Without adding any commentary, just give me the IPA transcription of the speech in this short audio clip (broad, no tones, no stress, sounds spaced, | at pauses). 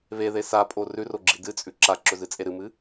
β e ð e s a pʼ o r ʉ r o ɡ͡ǁ i d ɨ t͡sʼ ʉ ǁ a ǁ ɵ z ɨ t͡sʼ e ɾ ɨ m ɨ